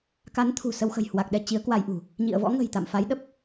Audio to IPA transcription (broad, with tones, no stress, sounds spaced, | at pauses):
k a˨˦ n t̪ʰ ṳ˨˩ s ə˧ w x ə̤˨˩ j h w a˨˩ k̚ ɗ ɛ˧ t͡ɕ i˨˦ ə̯ k w a˧ j ʔ ṳ˨˩ | ɲ ḭ˧˨ ə̯ v ɔ̰˧˥ ŋ ə̤˨˩ j t̪ a̰˧˨ m f a˨˦ j ɗ ə˦˥ p̚